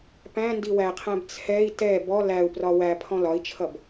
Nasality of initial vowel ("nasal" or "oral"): nasal